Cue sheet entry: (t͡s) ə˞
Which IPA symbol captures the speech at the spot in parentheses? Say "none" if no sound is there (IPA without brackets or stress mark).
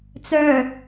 t͡s